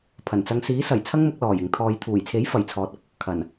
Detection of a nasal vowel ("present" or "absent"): absent